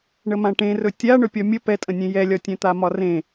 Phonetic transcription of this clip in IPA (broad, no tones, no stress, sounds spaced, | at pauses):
ɳ ə m ã ʈ ẽ r ɵ tʲ a ɳ ɵ pʲ ɒ mʲ ə p ɛ tʼ ə̃ nʲ ẽ j ɛ lʲ ɒ tʲ ɛ̃ t̪ a m ɒ r ẽ